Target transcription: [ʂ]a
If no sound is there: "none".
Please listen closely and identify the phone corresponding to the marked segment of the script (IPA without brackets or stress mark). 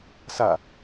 s